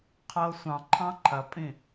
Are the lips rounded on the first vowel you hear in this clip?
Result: no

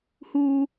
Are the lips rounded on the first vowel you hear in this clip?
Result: yes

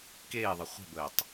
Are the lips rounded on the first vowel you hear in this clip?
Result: no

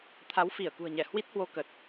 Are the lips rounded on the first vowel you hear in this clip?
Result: no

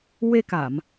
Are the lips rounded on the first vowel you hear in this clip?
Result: no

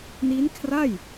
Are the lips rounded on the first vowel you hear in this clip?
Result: no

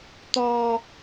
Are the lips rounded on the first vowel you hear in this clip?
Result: yes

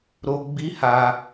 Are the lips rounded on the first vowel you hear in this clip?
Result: yes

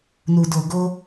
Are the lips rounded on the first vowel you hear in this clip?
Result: yes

